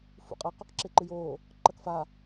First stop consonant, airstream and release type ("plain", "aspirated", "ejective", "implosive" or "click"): ejective